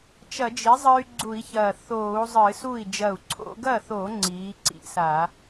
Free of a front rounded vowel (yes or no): no